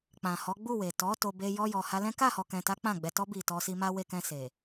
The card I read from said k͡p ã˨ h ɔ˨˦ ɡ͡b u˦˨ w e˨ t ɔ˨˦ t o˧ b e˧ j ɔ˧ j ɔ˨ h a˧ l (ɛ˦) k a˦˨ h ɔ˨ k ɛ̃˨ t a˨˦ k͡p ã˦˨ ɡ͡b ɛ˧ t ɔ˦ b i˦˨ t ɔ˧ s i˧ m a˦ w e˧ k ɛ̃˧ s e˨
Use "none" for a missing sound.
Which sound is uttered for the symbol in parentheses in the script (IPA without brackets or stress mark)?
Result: ɛ̃˦